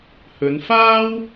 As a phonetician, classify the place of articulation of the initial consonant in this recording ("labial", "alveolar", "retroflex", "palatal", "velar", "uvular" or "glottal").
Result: glottal